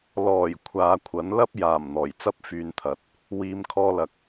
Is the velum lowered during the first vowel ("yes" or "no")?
no